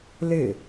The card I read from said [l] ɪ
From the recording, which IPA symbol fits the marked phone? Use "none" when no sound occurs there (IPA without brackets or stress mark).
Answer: l